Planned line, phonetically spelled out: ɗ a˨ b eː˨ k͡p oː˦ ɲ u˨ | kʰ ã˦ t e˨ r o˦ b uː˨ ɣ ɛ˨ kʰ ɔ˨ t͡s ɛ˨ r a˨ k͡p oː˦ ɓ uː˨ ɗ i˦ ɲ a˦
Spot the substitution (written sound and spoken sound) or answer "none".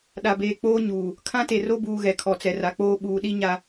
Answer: u˨ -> uː˨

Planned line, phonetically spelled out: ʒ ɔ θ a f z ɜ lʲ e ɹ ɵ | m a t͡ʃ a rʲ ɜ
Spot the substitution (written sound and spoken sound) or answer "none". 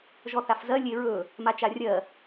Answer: none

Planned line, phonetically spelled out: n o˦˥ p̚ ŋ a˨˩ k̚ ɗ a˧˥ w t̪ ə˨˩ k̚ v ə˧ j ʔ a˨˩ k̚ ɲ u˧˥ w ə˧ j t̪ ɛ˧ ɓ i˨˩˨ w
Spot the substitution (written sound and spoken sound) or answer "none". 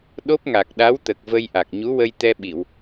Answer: n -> ɗ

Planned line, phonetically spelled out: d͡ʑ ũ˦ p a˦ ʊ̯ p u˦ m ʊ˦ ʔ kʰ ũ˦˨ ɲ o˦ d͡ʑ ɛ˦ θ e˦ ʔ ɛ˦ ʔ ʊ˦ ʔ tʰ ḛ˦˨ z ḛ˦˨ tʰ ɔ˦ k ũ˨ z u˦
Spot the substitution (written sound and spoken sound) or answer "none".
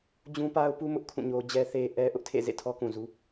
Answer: none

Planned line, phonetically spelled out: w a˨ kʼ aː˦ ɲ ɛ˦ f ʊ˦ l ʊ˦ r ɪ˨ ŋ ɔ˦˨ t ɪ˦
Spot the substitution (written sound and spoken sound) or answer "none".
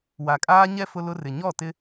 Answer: ŋ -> ɲ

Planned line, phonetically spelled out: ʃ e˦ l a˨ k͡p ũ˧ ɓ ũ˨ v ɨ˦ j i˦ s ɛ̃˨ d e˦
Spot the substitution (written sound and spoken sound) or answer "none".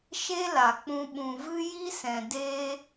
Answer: none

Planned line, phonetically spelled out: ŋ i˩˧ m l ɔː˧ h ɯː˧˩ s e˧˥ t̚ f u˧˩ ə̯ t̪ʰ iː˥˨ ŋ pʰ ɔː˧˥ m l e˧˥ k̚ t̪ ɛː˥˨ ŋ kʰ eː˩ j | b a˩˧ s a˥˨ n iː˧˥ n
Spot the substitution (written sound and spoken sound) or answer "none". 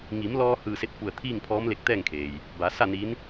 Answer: none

